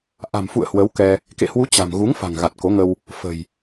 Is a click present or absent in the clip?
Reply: absent